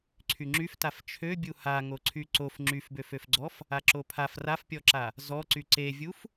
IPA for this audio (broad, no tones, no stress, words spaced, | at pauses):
ǀʰyŋ͡ǁyftaf t͡ʃʰøbʲu haŋo ǀʰyǀof ŋ͡ǁyfbøføfɡ͡ǀɔf | aǁopʰaf rafpʲɔǁa | zɔǀy ǀevʲuf